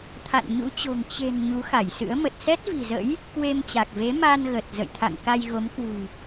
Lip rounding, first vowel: unrounded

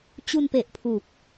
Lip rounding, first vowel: rounded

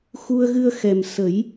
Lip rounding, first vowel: rounded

